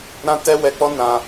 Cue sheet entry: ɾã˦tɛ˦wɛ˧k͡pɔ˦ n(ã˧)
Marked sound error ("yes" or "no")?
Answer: no